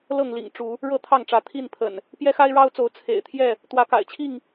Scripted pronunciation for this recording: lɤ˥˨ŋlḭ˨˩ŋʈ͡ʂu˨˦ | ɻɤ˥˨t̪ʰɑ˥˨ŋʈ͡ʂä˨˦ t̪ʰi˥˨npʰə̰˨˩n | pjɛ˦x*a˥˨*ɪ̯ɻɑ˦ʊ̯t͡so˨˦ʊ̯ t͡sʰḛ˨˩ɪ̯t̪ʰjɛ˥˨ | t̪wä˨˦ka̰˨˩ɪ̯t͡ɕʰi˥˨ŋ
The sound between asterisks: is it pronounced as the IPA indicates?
no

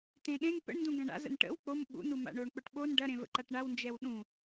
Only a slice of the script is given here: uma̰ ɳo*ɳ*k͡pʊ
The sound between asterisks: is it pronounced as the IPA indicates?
yes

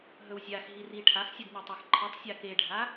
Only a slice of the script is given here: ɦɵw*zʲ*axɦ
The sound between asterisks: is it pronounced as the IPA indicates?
yes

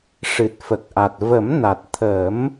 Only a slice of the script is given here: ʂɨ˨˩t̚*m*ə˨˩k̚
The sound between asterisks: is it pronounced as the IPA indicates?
no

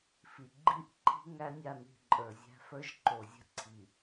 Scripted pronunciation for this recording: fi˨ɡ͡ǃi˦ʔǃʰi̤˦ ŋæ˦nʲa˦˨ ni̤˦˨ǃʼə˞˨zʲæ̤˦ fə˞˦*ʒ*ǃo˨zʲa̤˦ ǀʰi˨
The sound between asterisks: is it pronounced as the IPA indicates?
yes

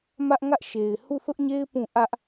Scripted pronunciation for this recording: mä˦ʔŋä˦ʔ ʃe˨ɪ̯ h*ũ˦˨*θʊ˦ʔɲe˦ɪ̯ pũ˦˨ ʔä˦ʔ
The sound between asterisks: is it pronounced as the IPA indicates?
no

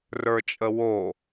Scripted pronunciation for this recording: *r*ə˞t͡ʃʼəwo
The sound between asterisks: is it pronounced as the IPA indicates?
yes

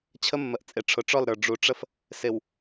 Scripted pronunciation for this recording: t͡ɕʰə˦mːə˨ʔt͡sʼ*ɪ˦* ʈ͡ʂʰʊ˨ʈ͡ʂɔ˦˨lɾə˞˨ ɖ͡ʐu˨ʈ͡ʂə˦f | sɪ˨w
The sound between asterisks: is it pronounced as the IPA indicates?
no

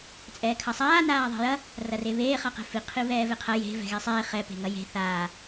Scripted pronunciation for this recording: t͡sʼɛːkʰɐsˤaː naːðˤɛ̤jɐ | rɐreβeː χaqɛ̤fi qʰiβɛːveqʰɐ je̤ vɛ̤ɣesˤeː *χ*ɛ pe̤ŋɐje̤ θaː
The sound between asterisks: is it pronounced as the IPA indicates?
yes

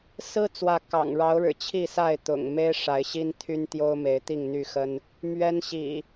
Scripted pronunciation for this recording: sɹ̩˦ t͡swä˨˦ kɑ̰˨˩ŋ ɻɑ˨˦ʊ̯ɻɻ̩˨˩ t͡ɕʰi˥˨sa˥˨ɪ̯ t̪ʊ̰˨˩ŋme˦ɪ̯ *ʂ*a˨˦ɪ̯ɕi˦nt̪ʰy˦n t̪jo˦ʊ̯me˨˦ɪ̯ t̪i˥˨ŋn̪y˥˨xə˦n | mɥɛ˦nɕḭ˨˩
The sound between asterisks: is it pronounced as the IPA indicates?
yes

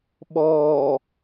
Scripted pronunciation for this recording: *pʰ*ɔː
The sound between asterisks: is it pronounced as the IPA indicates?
no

